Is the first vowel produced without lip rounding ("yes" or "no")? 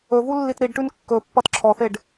no